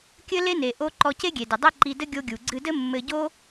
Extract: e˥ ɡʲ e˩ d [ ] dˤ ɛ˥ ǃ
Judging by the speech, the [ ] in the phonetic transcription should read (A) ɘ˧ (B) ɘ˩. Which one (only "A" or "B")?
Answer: B